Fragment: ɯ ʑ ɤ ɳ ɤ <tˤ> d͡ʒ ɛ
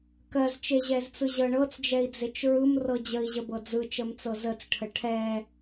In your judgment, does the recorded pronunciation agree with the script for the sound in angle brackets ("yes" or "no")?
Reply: no